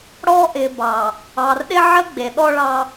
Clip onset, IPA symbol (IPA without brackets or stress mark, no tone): ɽ